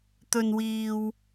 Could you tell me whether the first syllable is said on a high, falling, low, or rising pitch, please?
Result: low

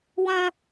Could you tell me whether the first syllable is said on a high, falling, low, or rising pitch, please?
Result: high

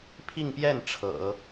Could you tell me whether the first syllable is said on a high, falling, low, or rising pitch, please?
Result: falling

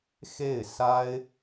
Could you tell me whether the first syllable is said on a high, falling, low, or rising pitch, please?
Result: falling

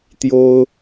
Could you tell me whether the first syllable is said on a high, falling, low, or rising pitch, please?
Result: high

